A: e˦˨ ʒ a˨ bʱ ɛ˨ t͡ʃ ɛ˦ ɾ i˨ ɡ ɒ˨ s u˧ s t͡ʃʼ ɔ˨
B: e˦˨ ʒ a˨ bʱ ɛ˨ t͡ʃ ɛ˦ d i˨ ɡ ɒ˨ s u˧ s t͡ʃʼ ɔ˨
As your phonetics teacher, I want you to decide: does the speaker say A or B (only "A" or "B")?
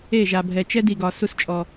B